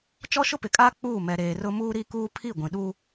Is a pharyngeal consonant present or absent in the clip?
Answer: absent